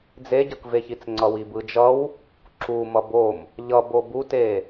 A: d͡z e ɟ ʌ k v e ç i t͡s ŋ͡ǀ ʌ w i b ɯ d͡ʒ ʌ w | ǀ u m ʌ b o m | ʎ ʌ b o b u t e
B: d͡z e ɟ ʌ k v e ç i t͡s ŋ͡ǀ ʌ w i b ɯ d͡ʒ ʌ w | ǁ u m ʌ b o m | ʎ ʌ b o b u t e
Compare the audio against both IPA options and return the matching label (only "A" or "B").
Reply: B